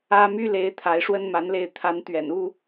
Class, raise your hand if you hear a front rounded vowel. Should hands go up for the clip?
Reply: yes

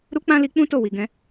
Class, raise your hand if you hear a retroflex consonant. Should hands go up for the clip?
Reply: no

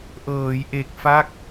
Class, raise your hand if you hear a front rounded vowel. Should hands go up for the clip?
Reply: no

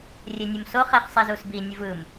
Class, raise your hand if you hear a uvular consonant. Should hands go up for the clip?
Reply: yes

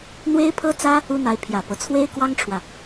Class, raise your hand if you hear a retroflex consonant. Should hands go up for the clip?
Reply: yes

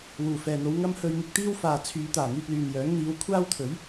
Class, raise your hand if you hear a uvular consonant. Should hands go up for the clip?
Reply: no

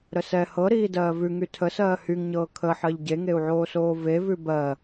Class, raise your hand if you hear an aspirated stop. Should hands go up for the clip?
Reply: yes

